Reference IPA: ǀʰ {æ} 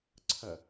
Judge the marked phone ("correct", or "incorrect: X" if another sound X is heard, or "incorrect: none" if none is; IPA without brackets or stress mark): incorrect: ɐ